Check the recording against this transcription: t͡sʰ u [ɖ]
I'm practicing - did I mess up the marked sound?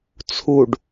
no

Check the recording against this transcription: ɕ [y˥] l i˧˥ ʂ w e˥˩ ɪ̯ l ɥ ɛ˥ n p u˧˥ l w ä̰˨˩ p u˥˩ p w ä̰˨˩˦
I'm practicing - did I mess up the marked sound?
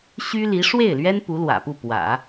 no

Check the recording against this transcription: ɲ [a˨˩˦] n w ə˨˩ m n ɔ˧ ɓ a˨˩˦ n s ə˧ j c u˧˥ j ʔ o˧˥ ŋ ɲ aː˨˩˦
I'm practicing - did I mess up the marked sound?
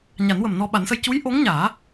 no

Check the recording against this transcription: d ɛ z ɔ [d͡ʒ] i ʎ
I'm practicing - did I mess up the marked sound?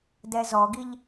yes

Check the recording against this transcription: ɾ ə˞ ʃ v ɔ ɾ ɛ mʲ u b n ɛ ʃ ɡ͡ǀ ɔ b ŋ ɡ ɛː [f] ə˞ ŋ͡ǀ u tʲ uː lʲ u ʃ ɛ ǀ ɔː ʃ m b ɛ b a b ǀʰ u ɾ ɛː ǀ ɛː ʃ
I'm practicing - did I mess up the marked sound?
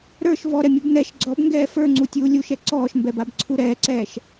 no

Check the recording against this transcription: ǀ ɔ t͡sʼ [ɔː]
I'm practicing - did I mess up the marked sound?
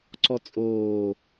yes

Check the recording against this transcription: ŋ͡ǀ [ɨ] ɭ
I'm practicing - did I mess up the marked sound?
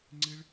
no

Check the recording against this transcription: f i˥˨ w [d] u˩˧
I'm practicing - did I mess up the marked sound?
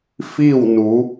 yes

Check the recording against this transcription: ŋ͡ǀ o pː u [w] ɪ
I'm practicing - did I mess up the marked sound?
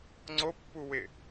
no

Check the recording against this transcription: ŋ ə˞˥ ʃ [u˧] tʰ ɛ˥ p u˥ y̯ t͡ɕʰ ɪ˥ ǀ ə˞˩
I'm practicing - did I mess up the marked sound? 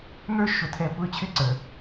yes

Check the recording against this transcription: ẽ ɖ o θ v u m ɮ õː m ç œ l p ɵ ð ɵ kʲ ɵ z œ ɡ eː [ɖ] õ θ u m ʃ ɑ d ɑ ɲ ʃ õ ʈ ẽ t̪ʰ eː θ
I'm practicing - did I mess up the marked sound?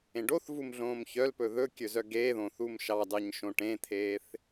yes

